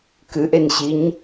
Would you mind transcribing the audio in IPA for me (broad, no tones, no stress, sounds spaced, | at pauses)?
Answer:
k ɨ ʔ e n ɕ i ɲ